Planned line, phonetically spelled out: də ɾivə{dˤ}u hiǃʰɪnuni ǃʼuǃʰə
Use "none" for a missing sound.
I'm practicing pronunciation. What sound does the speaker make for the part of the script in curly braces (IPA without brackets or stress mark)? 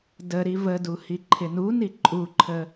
d